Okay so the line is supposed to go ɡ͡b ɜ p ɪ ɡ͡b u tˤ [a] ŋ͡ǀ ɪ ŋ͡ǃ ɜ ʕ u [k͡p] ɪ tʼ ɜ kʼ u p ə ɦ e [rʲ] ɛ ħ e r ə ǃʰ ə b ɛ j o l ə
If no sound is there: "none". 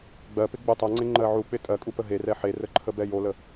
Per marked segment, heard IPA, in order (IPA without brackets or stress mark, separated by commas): a, k͡p, r